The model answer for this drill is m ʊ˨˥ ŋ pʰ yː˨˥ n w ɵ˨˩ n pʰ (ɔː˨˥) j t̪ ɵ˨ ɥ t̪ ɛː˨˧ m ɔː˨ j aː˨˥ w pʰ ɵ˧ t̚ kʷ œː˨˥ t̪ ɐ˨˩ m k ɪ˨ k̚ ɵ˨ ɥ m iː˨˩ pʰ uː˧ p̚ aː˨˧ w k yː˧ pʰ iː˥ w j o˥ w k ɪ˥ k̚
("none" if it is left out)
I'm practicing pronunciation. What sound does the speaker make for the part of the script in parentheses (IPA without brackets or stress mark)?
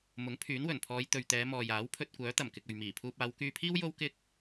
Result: ɔː˨˧